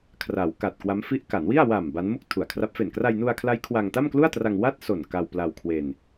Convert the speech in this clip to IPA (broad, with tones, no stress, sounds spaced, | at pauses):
kʰ r a˩˦ w k a˨˩ t̚ k w a˦˥ m f i˦˥ ʔ k a˩˦ n w i˥˩ a̯ w a˨˩ m b a˦˥ n m u˥˩ k̚ tʰ u˨˩ a̯ kʰ r a˦˥ p̚ f e˨˩ n k r a˧ j n u˧ a̯ kʰ l a˦˥ j kʰ w a˧ ŋ t a˥˩ m k l u˥˩ a̯ t r a˧ ŋ w a˥˩ t̚ s o˨˩ n k a˧ w p l a˧ w kʰ w e˧ n